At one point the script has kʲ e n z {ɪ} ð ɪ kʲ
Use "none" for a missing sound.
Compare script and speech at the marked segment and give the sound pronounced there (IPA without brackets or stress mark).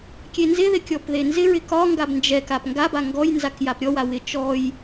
ɪ